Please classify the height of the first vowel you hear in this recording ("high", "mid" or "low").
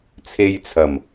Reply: mid